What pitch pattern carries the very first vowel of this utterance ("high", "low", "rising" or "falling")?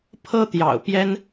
high